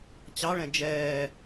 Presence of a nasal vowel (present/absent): present